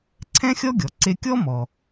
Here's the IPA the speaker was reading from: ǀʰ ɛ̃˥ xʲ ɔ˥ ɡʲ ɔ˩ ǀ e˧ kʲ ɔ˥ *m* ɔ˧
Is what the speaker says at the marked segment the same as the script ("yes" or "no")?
yes